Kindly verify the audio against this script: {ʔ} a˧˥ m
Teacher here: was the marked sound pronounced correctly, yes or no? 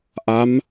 yes